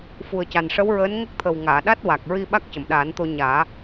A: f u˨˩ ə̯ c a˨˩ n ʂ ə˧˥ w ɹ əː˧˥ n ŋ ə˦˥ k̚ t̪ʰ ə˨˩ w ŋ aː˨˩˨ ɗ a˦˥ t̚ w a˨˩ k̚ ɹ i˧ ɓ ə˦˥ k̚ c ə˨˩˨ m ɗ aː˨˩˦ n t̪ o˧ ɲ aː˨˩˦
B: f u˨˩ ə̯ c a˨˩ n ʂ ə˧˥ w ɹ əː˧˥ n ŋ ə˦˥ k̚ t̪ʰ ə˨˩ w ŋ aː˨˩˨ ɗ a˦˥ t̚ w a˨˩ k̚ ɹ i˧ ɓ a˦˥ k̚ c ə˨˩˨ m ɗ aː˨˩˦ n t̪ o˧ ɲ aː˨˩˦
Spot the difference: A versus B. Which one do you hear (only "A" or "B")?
B